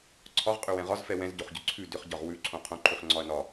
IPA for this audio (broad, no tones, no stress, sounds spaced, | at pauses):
ǀʰ ɒ ʁ qʼ ʏ w ɛ̃ ʁ ɒ z f ɛ w ɛ̃ z ɟ o χ ɟ ʏ ǀʰ ʉ d ʏ χ ɟ ɒ ʁ w ʉ ǀʰ õ qʰ õ ǃʰ ʉ χ ŋ͡ǀ ɒ ɐ̯ n ɒ